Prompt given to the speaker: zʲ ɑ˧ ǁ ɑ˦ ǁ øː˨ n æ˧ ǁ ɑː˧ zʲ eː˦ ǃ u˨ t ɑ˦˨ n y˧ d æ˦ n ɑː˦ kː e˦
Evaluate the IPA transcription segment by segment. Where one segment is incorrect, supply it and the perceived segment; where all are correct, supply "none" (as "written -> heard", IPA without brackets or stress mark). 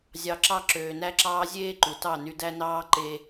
kː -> ǃ